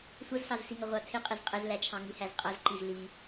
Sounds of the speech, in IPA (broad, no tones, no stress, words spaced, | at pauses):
sʷʌzsɑzsiŋʌ ʁʷɑtʰɪqʼɪz qʼɪzlæt͡ʃʰɑ̃ŋi hæzqʼʌzǃiz li